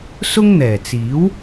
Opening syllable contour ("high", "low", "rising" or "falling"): high